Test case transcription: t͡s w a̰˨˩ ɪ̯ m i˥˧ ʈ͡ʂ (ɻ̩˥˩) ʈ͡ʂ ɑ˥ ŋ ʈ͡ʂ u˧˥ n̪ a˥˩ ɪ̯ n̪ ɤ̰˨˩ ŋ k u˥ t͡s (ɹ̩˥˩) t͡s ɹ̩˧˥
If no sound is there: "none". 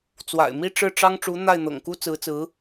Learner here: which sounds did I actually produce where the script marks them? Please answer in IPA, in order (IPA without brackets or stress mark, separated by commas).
ɻ̩˥˩, ɹ̩˧˥